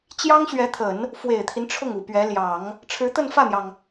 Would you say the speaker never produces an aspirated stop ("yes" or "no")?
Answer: no